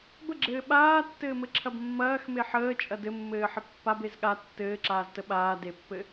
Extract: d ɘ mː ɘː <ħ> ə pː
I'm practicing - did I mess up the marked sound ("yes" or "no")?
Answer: no